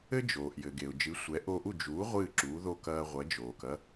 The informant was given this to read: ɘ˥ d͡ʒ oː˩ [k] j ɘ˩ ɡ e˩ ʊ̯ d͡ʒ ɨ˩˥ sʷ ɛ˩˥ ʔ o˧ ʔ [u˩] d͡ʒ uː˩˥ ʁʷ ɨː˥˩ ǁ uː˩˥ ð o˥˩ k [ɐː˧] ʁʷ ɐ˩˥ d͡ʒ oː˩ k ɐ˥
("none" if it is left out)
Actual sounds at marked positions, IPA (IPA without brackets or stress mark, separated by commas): ʔ, u˥˩, ɐː˧